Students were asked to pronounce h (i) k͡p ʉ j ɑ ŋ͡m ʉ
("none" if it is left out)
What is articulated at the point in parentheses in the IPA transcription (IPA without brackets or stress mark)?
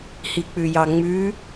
i